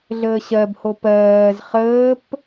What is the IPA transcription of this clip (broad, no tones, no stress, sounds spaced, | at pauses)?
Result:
ɮ əː ɕ ɜ b h o p ɜː z χ əː p